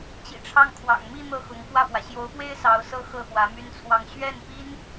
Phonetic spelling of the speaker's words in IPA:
t͡ɕḭ˨˩ʈ͡ʂʰɑ˥˩ŋkʰwɑ̰˨˩ŋ mi˥˧ n̪ɤ˥˩xʊ˧˥ŋkwä˥˩pwä˩ ɕjo˧˥ʊ̯pwe˥ɪ̯ sɑ˧˥ʊ̯sɤ˥ xɤ˥˩xwä˧˥my˥nt͡sʰwɑ˥˧ŋ ɕɥɛ˥˩npi˥n

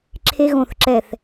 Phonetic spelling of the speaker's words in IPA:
ǁʰe˦ɣõ˦˨θǁɛ˦˨θ

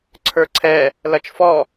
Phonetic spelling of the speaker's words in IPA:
ǀʰə˞ǀʰɛ | lɐt͡ʃfɔ

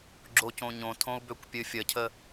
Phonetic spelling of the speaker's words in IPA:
ɡ͡ǁocõɲõtʰõu̯ bøkʷpʲɨfʲəcʰə

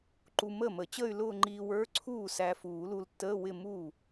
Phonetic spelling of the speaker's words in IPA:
ǃu˧ məː˥˩mə˨˩˦t͡ɕəː˥˧y̯ lʊː˥˧ŋ͡ǃiː˧wə˞˧˥˧ǀʰuː˥˩ sæ˧fuː˨˩˦lu˧ltːəː˧˥˧ wɪ˥˧mu˥˩

